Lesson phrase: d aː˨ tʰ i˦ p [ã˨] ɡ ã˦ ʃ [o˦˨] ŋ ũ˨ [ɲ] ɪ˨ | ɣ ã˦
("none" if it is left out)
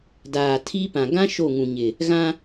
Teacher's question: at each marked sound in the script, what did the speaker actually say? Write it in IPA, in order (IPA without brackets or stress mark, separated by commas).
ã˨, o˦˨, ɲ